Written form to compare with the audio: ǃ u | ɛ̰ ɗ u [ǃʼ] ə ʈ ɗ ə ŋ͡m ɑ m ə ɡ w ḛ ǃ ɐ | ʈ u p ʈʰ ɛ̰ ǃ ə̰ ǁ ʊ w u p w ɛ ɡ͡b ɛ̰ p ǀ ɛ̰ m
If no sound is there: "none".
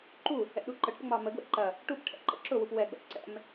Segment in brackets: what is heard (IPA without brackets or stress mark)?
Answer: ǃ